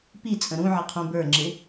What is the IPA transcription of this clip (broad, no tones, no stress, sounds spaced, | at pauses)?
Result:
p i t͡sʼ ə̃ ɾ ũ ʕ ɪ qʰ ũ b ə˞ ŋ͡ǁ ɪ